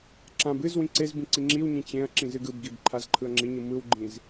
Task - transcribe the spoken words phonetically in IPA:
ǁ ã b ɨ z w ĩ ǀ e z b ĩ ǀ i ŋ͡ǁ i w ɲ ĩ t͡ɕ ẽ ɐ̯ ǁ ĩ z ɨ ɡ ɯ b ɡ i b ǃʰ a z ǃʰ ɯ ɐ̯ ŋ͡ǁ i ɲ ɯ m ɯ w ɡ͡ǃ ĩ z

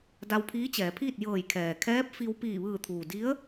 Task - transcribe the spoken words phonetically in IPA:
d a˧ w pʰ iː˧˥ t͡ɕ ɛː˩˧ pʰ iː˥˨ t̚ j ɤː˧˩ j kʰ ɛː˩ kʰ ɛː˧˥ p̚ f i˧ w p iː˧˩ ʋ ɯː˧˩ t̪ʰ uː˩ d i˧˥ ə̯

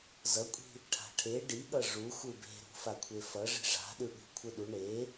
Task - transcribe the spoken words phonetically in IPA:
z ʌ kʷʼ i̤ | ʈʰ a̤ ʈʰ e ɖ i ɠ ʌ ʐ u xʷ ɯ b e̤ ɾ ṳ f a kʷʰ e f ʌ ʐ i̤ ʐ a̤ ɗ ɯ ɠ ṳ kʷʰ ɯ ɗ u ɳ e

